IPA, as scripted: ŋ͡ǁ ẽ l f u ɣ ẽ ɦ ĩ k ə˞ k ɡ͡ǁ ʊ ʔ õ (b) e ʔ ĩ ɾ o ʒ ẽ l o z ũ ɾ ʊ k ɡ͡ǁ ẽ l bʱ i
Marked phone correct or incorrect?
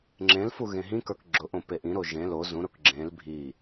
incorrect